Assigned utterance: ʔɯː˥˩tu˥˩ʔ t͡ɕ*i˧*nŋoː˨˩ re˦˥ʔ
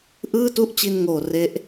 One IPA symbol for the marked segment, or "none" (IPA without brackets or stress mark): i˧